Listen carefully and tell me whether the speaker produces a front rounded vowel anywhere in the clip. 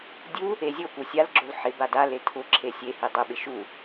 no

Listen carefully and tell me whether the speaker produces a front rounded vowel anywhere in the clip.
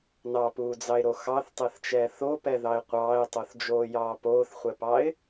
no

